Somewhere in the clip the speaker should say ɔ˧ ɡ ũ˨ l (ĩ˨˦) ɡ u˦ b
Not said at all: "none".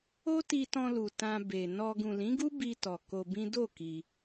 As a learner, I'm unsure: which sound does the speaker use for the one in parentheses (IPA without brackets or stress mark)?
ĩ˨˦